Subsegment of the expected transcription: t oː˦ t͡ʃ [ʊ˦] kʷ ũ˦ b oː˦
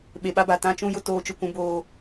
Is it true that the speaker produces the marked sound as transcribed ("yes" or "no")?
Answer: yes